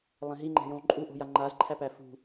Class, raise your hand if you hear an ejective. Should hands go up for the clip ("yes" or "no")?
yes